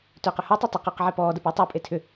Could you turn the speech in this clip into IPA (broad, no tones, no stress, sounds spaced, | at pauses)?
t ʏː q ʏ h u tˤ ɐ tˤ ə q ʏː q ʕ e p ɔː d ə p ʏː tˤ e pʼ e tʰ ʏ